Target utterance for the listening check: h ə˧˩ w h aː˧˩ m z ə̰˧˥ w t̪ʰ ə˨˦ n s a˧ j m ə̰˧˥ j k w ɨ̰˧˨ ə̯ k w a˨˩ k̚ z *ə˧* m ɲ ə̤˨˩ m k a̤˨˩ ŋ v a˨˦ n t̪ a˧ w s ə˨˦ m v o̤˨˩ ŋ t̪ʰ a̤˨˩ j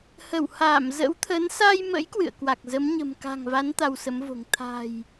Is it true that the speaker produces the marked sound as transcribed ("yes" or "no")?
no